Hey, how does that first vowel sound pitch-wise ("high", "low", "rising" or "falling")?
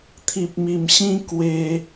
low